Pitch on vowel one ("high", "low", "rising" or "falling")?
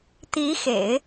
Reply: rising